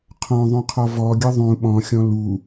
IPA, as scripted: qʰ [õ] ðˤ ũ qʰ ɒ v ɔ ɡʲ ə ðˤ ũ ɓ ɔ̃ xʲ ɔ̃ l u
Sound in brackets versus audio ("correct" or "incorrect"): incorrect